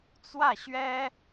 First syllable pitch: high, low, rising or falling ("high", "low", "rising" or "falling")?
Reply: falling